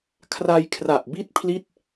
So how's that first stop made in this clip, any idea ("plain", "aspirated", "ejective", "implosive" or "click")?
aspirated